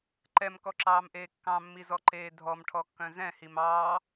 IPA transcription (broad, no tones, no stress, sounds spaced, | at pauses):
ǃ ɛ m k ɔ ǁ ɑː m ʔ eː kː ɑ̃ mː i z ɔ ǃ eː dʱ ɔ m ʈʰ ɔ kː œ̃ z ɛ̃ h i m ɑː